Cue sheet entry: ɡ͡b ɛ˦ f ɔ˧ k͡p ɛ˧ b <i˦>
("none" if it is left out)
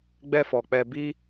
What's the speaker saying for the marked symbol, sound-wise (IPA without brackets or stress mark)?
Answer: i˦